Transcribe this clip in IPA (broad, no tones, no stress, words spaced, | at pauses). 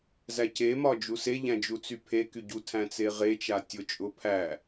zæcemɒ d͡ʒuseʎæ̃ d͡ʒut͡sypʰeky ɟu tʰæ̃t͡seʁet͡ʃa tʲʊt͡ʃʼʊ pʰæ